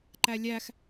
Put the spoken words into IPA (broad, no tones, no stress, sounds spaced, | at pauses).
ǃ æ lʲ æ x